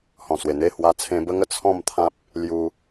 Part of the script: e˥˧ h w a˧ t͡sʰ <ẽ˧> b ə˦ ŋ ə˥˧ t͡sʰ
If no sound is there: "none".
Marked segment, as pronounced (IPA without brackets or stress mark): ẽ˧